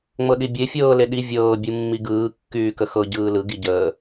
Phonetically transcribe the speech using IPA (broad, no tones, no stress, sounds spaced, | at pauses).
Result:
ŋ͡m ɤ ɗ i bʲ e fʲ ɤː l e ɗ i vʲ ɤː bʲ ɯ mː i ɡ ɯː kː yː k ə x ɤ ɟ ɯː l ɯ ɡ i ɟ əː